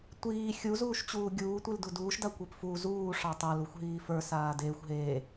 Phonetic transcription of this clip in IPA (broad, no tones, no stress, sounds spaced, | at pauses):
tʷ iː xʲ u z uː ʃ t͡ɕ uː ɡʲ uː tʷ i l d u d uː ʃ d a kʷ e p f u z uː ʂ ɑ tˤ a l u xʷ ɦ iː f ə˞ s aː d eː xʷ ɦ eː